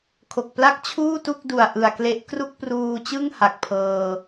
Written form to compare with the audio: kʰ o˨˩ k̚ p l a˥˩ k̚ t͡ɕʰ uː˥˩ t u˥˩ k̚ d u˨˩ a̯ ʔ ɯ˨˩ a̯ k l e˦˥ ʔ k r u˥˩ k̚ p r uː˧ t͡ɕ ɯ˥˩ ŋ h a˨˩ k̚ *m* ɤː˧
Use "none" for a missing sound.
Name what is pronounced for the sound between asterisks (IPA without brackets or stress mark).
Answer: pʰ